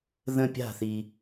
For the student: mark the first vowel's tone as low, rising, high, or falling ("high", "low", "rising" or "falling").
falling